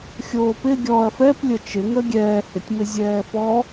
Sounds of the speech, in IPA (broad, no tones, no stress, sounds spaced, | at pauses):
xʲ oː p ɪ ɡʲ ɔ ɐ̯ f ɛ p lʲ ə t͡ʃ ɪ ŋ ə ɡʲ ɛː h ɪ tʲ m ɪ zʲ ɛː f ɔ